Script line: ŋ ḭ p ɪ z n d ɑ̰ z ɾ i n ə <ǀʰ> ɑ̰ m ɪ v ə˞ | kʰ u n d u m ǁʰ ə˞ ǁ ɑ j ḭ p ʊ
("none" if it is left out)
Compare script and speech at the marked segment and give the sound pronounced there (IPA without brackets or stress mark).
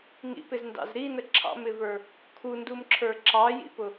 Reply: ǁʰ